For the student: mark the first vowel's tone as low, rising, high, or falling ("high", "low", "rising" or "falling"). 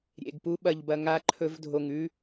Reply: low